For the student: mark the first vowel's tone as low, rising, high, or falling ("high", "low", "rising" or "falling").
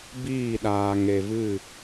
falling